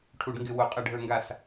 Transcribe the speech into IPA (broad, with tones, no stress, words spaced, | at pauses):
ʈʰu˧˩˧ɖŋɡɪ˧˩˧wo˩˧ qʼɛ˧˩˧ɖʱə˞˧˩˧ŋɡa˧˩˧s